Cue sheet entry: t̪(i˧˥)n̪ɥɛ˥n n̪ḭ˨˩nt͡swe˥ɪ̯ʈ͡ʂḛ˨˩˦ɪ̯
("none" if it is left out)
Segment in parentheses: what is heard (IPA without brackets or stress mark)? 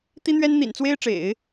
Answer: i˥